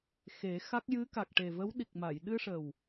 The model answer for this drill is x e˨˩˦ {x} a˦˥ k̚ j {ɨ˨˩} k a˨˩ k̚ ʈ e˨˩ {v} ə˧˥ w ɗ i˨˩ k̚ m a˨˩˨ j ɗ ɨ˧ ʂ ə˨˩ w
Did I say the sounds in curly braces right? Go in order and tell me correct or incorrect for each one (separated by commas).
correct, incorrect, correct